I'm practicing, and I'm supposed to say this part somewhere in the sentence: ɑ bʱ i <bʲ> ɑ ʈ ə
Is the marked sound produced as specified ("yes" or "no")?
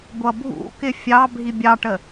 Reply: yes